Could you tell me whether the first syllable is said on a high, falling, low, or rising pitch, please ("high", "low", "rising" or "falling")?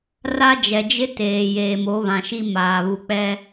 high